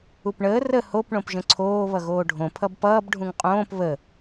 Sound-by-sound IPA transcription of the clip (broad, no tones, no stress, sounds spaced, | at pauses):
u p ɳ əː r ə h o p ɳ õ p ʒ ə̃ ǀʰ oː β ʌ ɣ oː ɖʱ õ pʰ ʌ b p ʌː b ɖʱ ũ ŋ qʼ õː p β ə